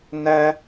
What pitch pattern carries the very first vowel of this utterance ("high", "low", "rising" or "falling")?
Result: high